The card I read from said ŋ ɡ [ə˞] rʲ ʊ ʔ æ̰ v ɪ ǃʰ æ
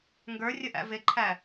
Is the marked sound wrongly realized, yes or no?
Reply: no